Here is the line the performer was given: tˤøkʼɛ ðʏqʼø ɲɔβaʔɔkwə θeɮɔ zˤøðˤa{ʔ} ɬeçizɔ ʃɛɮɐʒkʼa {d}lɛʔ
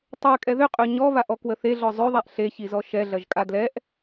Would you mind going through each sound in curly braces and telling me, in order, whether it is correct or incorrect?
correct, correct

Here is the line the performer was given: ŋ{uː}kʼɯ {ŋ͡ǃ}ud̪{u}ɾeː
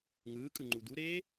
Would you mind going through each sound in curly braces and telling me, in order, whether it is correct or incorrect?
incorrect, correct, correct

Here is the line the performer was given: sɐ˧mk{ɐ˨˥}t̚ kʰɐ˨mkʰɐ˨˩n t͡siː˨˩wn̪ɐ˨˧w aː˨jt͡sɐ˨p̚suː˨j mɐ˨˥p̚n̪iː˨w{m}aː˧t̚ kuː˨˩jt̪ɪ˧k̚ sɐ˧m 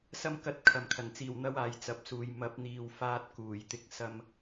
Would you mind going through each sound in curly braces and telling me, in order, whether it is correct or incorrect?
correct, incorrect

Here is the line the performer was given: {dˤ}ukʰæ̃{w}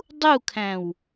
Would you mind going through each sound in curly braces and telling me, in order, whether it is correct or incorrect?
correct, correct

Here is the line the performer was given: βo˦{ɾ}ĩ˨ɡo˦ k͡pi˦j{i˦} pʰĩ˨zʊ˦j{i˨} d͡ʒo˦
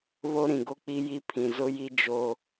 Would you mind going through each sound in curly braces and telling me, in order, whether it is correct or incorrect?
correct, correct, incorrect

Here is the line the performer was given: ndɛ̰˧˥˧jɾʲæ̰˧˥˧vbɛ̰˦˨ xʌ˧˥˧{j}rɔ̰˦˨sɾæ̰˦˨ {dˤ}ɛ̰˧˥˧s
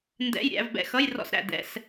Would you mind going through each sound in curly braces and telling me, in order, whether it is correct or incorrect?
correct, incorrect

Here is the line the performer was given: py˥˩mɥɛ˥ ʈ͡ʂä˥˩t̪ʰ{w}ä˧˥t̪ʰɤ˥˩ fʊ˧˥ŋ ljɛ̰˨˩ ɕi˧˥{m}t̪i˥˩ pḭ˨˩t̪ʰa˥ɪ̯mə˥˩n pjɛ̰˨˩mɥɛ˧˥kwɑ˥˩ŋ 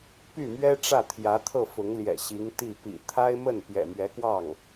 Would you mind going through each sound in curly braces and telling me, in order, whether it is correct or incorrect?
incorrect, incorrect

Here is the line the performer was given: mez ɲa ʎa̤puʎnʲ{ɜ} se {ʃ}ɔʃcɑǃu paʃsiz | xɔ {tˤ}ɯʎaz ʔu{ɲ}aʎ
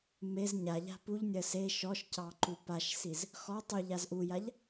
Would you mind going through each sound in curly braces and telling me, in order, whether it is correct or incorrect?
correct, correct, correct, incorrect

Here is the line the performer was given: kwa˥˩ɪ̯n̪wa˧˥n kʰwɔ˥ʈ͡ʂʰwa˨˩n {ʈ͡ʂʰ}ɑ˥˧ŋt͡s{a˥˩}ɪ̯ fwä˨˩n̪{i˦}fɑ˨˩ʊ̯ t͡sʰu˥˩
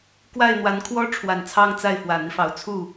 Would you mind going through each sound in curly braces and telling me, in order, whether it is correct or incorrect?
incorrect, correct, correct

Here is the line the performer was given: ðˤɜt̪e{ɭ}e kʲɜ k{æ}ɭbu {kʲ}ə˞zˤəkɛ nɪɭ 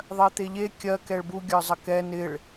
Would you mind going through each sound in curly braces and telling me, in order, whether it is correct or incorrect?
incorrect, incorrect, incorrect

